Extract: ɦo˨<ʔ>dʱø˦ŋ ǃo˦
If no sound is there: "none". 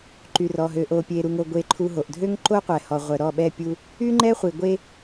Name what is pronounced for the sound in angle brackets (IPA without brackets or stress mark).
ʔ